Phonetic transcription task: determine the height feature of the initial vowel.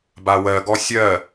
low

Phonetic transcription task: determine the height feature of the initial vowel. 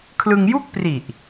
high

